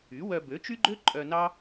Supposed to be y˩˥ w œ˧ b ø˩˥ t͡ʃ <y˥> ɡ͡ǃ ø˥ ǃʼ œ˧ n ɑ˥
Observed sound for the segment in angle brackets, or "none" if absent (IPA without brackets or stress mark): y˥